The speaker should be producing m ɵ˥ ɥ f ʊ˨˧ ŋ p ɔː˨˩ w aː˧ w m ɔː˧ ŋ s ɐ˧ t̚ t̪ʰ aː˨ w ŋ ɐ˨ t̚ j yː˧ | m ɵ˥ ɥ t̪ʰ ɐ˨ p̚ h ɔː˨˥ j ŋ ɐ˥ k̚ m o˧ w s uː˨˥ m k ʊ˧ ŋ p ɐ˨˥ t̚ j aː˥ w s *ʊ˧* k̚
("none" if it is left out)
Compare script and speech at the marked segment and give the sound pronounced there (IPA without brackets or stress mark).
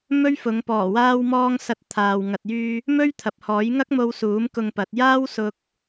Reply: ʊ˧